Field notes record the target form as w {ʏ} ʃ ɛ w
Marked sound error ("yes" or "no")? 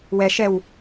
yes